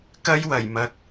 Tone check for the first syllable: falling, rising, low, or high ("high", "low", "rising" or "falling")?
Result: high